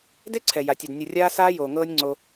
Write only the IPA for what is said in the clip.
d e˦ ǀʰ ɛ˨ j a˨ tʲ ɛ˨ d nʲ ə˨ rʲ aː˦ s aː˦ j oː˨ ŋ ɤː˦ nʲ ŋ͡ǀ o˦

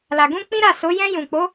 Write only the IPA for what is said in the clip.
l a˨ ɡ ũ˧ k͡p ĩ˦ ɾ a˦˨ s o˨˦ j ɛ̃˧ j ũ˨ k͡p o˨˦

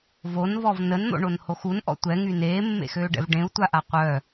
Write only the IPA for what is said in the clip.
v o n v ɔ v n ə n n̪ o̰ ɳ o n h o x u n ʔ ɔ̰ tʷ ɛ ŋ y n eː mː ḛ x øː ɖ ɛ̰ v ɖ ẽ u̯ tʷ a ʔ a qʷ œ

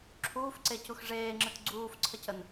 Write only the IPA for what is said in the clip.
ǁʰ uː f ǀ e c u x ʐ eː ŋ͡ǁ ɨ t ɡ͡ǀ uː f ǀʰ ə c ə n

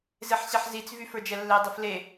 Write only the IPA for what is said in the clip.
z e ħ ɕ ɛ ħ z i t͡s v y f ə˞ d͡ʒ ɛ lː e dˤ i f l e

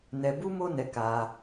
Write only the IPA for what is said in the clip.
n ɛ˧ b u˦ m o˦ n ɛ˧ k a˧

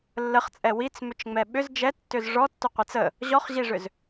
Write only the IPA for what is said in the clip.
lː ə χ t͡sʼ ɛ w i t͡s m ʏ t͡ʃ ŋ͡m ɛ ɓ ʏ z d͡ʒ ɛ tː ʏ z ʐ ɔ tː ʏ qʷ ɛ t͡s ə | ʑ ɔ χ ʑ i ʐ ʏ z

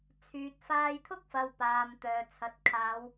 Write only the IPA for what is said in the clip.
t͡sʰ yː˨ t̚ f aː˧ j t̪ʰ ʊ˥ k̚ f ɐ˨ w p aː˨ m t̪ œː˨ t͡sʰ ɐ˨ t̚ kʰ aː˨˧ w

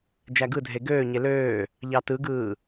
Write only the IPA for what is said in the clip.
d͡ʒ æ ɡ ɯ dʱ e ɡ øː ɲ e l øː | ʎ ɑ t ɯ ɡ ɯː

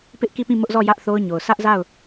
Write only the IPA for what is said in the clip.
p ɪ˦ ʔ k i˦˨ p ĩ˦˨ m ʊ˦ ʔ z ɔ˦˨ j ä˦ ʔ θ o˦ ʊ̯ ɲ o˨ ʊ̯ s ä˦ ʔ z a˦˨ ʊ̯

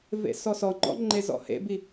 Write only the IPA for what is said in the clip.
v ḛ s ɔ s ɔ ŋ͡ǃ ɔ̰ ŋ͡ǃ e z ɔ̰ h ḛ b i

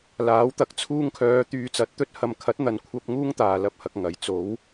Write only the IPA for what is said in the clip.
l aː˨˥ w t̪ ɐ˨˥ k̚ t͡sʰ uː˧ ŋ kʰ œː˨˧ t̪ yː˧ t͡s ɐ˨˥ t̚ t̪ ɵ˥ t̚ h ɐ˨ m kʰ ɐ˨˥ t̚ n̪ ɐ˨ n kʷʰ ɐ˧ p̚ ŋ uː˥ ŋ t̪ aː˨ l ɐ˧ p̚ h ɐ˧ k̚ ŋ ɐ˨˥ j t͡s o˨˥ w

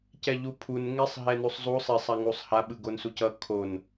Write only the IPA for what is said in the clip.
c ɛ ʎ u pʰ u n ŋ e sˤ ɦ ɛ n u sˤ zˤ u sˤ e sˤ a ŋ u sˤ h a ɓ ɯ ɡ o n s u c ʌ kʰ o n

